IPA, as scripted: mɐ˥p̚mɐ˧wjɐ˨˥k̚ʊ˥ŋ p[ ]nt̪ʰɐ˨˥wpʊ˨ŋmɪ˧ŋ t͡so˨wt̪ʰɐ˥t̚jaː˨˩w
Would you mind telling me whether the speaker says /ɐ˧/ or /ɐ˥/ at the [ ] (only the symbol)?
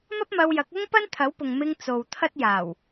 ɐ˥